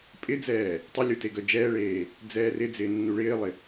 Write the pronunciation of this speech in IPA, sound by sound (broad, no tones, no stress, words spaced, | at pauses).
pʼɪd͡zɛː | tˤɪlʲu teɡœd͡ʒɛːɭeː | d͡zɛːrɪd͡zɪː nːuɭɪːlˠɪ